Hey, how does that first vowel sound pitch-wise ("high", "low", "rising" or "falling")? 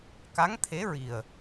rising